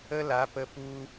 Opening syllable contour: high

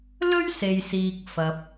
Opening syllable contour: high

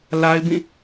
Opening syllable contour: high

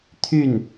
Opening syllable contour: falling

